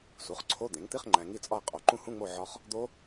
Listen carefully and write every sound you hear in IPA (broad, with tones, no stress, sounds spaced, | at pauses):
s u˩˥ χ ǀʰ o˧˥˧ d̪ ẽ˩˥ ŋ t̪ i˧˥˧ χ ŋ͡ǃ æ̃˨ ŋ i˦˨ t͡sʼ ɒ˦˨ ə̯ qʼ o˩˥ ǃ ũ˦˨ h ũ˧˥˧ ŋ͡m o˦˨ ʕ ɒ˦˥ χ | d̪ o˦˥